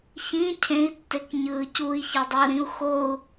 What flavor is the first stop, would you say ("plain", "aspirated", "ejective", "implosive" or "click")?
aspirated